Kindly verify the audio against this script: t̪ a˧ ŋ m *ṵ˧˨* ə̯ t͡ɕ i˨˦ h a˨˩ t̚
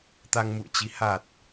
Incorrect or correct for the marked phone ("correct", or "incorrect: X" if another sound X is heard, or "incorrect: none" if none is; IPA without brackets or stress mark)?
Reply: correct